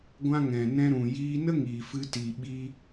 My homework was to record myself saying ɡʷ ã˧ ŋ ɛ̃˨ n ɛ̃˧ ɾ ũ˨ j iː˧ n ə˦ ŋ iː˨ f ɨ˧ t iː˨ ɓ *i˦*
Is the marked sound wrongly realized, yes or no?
yes